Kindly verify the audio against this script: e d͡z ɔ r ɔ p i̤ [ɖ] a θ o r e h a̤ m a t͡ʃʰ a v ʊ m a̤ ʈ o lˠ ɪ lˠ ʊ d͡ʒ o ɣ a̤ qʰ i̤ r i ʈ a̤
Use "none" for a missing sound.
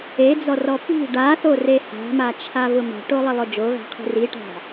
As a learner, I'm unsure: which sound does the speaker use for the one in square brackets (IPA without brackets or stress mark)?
ɖ